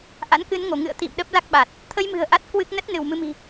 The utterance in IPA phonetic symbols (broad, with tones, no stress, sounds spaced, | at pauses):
ʔ a̰˧˥ n k ɨ˨˦ n ŋ o˧˩ ŋ ɨ̰˧˨ ə̯ t̪ ḭ˧˨ m ɗ ə˦˥ p̚ l a˦˥ k̚ ɓ a˨˩ t̚ | t̪ʰ ə˧ j m ɨ̤˨˩ ə̯ ʔ a˦˥ t̚ k w ɨ˦˥ k̚ n ə˦˥ t̚ n ɨ˧˩ w m ɨ˧ m i̤˨˩